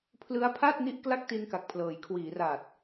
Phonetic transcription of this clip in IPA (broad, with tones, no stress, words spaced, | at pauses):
pʰlɯ˦˥a̯pʰa˥˩t̚ni˦˥ʔ kla˥˩k̚ti˧nka˨˩k̚pʰlɤː˩˦j kʰwiː˩˦ra˨˩t̚